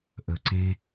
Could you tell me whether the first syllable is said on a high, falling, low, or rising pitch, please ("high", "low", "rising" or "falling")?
low